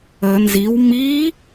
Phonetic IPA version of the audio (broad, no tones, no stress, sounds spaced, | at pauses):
ə n z i w m i